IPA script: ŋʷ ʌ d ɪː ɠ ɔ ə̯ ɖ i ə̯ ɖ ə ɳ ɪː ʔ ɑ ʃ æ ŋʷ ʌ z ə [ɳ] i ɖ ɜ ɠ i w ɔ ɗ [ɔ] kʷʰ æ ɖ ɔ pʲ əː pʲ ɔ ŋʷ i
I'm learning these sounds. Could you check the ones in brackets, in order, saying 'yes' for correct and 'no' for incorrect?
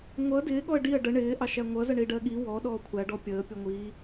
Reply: yes, no

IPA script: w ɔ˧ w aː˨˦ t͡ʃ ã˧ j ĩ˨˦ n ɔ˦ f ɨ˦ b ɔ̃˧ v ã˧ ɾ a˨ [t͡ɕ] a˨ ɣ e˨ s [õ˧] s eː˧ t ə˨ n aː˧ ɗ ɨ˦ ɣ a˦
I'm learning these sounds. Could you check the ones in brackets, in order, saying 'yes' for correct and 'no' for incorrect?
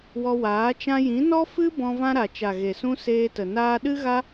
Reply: no, no

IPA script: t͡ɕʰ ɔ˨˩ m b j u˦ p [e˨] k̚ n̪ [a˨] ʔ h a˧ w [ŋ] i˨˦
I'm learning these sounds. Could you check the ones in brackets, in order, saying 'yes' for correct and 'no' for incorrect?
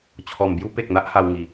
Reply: yes, no, yes

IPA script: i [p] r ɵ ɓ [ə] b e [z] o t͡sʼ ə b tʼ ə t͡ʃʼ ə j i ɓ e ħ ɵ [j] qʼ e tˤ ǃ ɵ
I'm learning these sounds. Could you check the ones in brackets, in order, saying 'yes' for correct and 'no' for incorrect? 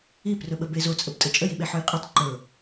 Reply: yes, yes, yes, yes

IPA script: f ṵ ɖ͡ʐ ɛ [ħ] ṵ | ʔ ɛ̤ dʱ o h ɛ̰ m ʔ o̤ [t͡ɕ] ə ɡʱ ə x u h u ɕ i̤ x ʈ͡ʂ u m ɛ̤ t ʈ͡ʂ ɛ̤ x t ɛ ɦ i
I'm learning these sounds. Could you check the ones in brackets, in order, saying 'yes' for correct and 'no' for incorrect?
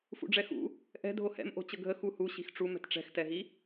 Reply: no, yes

